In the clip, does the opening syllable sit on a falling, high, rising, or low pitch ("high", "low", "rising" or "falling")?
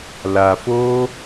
low